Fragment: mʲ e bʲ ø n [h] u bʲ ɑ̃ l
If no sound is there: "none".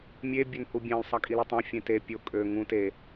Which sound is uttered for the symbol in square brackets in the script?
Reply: h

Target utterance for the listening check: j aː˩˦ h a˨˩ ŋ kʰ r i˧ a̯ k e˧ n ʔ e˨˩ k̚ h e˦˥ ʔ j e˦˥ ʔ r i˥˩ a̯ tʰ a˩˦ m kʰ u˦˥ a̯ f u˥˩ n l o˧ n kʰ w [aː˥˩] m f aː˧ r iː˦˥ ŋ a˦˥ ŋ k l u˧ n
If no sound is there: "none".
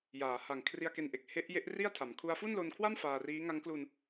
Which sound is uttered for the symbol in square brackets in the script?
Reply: a˥˩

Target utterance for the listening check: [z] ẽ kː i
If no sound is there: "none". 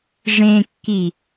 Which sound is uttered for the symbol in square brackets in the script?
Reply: ʐ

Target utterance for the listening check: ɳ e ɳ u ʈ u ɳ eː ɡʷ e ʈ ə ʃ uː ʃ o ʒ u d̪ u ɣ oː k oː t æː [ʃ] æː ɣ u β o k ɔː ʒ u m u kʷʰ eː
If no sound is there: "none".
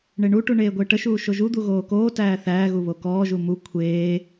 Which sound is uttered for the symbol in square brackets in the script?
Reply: θ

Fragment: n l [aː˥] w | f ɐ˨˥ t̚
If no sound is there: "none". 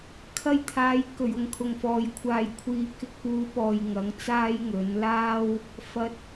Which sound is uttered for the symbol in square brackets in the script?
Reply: aː˥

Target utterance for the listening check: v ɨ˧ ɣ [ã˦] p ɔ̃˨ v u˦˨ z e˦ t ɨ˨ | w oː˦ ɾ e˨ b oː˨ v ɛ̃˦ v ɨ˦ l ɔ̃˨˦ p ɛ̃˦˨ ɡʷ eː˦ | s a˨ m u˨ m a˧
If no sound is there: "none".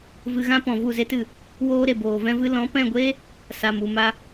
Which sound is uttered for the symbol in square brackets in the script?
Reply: ã˦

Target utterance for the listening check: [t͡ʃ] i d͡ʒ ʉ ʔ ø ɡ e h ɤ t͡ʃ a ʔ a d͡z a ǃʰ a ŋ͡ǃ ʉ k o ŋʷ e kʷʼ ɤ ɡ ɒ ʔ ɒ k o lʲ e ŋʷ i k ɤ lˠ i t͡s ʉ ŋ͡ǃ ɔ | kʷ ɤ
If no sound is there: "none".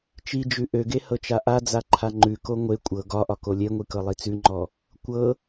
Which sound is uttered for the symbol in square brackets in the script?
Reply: t͡ʃ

